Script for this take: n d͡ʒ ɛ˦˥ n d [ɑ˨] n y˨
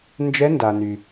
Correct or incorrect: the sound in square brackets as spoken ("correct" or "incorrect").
incorrect